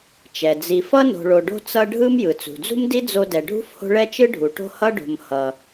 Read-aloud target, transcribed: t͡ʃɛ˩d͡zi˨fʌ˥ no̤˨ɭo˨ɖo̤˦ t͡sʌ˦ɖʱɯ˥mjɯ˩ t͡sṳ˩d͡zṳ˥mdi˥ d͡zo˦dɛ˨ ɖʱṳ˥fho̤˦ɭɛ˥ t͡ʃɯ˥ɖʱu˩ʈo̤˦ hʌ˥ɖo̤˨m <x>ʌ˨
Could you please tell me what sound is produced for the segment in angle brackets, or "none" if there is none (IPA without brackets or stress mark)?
h